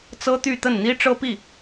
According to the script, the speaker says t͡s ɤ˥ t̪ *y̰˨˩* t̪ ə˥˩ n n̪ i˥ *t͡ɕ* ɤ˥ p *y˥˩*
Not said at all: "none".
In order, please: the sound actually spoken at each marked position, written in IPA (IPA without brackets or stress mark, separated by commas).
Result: y˥˧, ʈ͡ʂ, i˥˩